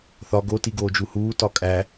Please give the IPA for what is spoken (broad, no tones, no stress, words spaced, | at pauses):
θɒ ɡotiɡoːd͡ʒu huːtɒ kʼæ